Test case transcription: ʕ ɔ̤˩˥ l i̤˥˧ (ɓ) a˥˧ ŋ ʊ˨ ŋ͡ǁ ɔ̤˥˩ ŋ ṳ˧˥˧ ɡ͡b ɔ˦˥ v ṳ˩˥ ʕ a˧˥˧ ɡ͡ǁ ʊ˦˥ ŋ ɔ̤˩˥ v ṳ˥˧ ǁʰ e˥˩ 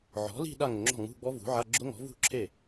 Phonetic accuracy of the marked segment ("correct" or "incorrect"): incorrect